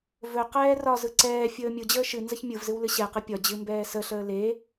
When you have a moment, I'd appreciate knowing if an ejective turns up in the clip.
no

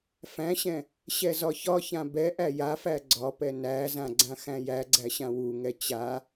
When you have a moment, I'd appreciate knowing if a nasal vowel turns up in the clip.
yes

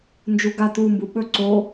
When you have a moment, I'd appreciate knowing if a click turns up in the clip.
yes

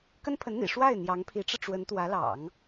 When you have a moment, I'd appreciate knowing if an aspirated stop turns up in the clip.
yes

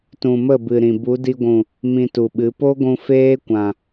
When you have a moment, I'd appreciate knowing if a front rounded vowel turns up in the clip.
no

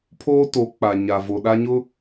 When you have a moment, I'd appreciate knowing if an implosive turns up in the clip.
yes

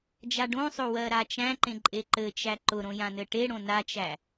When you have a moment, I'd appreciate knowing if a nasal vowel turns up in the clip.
yes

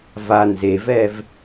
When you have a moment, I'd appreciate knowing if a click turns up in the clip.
no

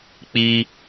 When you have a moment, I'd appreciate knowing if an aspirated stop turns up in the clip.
no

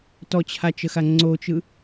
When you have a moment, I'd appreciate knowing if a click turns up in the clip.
yes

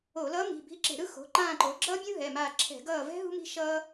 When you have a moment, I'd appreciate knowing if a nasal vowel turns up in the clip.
yes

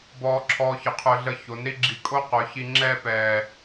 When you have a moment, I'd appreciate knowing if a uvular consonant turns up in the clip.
yes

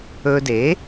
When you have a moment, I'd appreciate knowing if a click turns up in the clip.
no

